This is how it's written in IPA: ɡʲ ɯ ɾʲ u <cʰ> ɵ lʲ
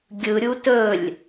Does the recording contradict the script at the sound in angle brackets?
yes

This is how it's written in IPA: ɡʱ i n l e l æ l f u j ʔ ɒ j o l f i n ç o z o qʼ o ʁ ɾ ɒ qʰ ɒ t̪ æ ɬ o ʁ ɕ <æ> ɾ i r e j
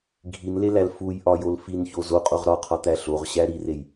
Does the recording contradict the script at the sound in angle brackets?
no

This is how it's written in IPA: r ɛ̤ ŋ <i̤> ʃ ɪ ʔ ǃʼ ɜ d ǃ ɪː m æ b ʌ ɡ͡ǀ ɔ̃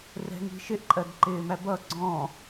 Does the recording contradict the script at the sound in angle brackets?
no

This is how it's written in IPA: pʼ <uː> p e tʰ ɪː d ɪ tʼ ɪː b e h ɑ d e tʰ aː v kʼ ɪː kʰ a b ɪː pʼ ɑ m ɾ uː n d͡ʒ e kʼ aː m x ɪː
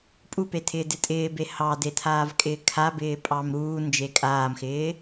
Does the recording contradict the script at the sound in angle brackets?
yes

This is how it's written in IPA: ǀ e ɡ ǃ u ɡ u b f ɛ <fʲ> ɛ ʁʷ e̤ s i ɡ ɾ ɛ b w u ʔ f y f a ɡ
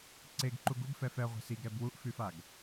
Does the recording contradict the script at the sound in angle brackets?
yes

